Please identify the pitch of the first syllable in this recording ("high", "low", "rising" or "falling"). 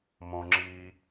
low